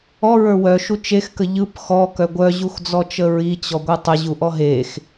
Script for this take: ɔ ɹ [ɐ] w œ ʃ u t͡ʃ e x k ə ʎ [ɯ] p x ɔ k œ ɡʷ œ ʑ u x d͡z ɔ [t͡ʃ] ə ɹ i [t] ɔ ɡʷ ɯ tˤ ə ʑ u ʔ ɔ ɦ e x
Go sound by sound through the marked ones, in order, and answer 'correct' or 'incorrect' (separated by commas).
incorrect, correct, correct, incorrect